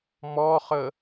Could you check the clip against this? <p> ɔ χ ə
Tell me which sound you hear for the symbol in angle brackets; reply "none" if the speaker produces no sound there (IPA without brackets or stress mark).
m